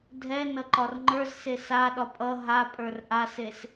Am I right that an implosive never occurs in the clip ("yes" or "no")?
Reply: no